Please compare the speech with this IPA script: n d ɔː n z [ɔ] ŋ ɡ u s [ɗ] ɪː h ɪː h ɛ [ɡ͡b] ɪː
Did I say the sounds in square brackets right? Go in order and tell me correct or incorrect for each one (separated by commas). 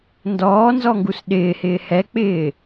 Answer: correct, correct, incorrect